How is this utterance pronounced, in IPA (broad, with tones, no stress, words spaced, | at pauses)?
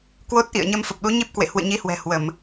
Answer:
kwo˦˥t̚ʔḭ˧˨ə̯ɲə˧m fə˨˩p̚ɗu˨˦ɲi˦˥p̚kwḛ˧˨ hwɨ̰˧˨ɲi˨˦hwɛ̤˨˩ hwə˧˩˨m